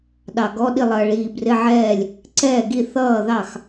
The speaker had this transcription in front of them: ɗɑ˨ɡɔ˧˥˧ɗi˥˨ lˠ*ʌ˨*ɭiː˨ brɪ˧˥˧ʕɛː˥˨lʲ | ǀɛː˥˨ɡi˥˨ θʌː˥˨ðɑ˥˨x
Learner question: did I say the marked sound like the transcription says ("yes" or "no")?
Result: yes